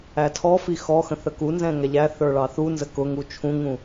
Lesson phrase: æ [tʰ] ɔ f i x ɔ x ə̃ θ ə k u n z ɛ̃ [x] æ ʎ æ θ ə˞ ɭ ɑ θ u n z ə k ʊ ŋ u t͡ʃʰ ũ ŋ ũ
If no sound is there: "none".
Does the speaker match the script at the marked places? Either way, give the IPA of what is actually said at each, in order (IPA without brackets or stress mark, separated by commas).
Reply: tʰ, ŋ